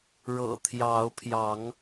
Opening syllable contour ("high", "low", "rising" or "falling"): low